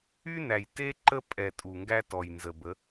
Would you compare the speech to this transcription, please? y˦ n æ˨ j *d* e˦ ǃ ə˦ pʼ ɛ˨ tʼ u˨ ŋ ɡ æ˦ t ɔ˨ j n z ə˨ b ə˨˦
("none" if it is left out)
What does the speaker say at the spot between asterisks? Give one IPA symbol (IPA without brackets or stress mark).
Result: t